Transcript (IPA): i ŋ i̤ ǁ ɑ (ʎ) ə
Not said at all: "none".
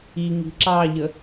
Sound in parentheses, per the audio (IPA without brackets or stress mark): ʎ